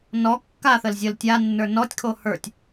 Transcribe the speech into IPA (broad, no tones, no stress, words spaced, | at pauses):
nɔ kːaθəl zʲəl tʲanːə˞ nɔtʲkʰo hə˞tʲ